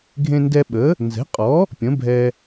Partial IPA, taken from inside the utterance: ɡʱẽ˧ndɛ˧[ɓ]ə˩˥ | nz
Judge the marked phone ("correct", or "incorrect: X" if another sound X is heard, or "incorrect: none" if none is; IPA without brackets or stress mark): correct